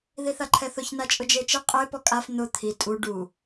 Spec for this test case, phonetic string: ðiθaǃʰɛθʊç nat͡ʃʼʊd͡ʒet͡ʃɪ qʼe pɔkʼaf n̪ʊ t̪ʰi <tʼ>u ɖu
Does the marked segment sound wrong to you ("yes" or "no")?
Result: no